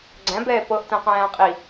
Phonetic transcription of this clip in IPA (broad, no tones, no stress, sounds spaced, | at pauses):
ɡ͡ǀ æ̃ b ɛː p ɤ ʔ t ɛ̃ q æ̃ː qʼ i